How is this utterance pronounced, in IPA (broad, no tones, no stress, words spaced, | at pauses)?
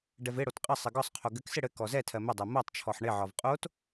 ɖɛvɪɽot qʼɘsˤɘ ɡɒsˤqʰo ɡɘksɪ ɽɘ kɔzɛtʰɜ mɪdˤɛ motˤ t͡ʃʰɔħɳɪʕɒv qʼot